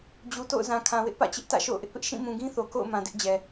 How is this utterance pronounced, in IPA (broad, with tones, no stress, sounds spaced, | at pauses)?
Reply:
d͡ʑ u˨ t o̰˦˨ ʊ̯ z ã˨ kʰ ã˨ w ɪ˦ ʔ p ä̰˦˨ t͡ɕ ɪ˦ ʔ t ä̰˦˨ ʃ o̰˦˨ ʊ̯ ʔ ɪ˦ ʔ p ɪ˦ ʔ ʃ ĩ˦˨ m ũ˨ ɡ ĩ˦ θ o˨ k o̰˦˨ ʊ̯ m ã˨ d ɪ˦ ʔ d͡ʑ ɛ˨